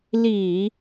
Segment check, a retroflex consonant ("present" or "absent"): absent